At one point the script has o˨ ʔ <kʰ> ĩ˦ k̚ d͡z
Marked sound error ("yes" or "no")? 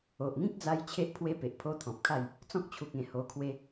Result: yes